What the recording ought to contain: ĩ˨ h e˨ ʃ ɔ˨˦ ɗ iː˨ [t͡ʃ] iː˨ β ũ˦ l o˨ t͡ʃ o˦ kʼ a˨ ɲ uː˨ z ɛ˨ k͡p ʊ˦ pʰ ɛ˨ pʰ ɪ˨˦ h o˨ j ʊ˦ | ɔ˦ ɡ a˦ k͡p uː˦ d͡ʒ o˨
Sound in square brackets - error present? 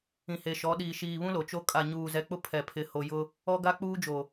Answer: yes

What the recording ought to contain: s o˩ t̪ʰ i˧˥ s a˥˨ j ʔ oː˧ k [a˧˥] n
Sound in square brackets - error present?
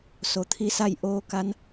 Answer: no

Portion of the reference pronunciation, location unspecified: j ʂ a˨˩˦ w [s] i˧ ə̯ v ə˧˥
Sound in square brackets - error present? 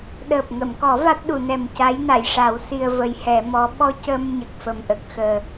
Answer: no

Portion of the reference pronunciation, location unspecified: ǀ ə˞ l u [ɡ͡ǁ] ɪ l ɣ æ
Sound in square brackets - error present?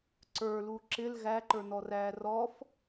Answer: yes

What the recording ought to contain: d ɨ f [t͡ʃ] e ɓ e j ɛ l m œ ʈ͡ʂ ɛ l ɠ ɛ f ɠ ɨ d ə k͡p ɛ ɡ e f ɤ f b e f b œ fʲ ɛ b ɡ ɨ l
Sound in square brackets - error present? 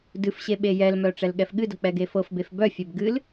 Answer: yes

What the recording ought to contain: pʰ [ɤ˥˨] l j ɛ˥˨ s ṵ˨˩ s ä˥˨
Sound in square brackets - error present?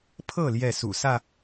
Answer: no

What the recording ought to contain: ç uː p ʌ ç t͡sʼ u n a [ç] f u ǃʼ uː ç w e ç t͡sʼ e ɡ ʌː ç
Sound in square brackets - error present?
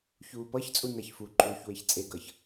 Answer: no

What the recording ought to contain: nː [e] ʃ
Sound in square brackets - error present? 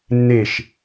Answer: no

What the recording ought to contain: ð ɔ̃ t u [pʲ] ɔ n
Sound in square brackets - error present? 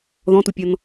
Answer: no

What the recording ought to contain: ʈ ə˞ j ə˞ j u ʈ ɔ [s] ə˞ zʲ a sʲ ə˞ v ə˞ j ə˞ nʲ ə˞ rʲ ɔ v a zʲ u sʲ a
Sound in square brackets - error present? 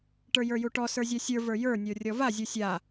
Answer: no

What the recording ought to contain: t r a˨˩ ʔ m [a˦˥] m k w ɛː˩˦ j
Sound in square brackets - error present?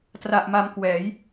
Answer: yes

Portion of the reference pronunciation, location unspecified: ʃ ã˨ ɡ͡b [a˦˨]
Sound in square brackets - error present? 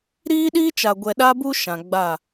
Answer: no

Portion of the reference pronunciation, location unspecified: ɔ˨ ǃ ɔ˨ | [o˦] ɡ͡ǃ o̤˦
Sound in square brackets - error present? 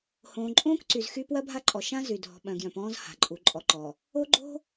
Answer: no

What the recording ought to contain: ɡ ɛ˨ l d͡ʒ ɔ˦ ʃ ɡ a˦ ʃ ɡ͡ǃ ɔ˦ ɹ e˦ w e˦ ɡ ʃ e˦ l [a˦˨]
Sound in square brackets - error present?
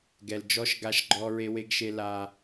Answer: yes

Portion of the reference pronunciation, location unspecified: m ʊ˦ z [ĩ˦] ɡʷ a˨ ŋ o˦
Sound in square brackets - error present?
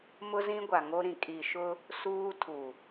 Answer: no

